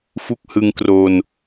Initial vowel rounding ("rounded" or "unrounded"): rounded